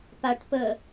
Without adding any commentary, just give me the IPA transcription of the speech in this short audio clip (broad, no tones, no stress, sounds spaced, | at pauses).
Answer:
p a ʈ p ə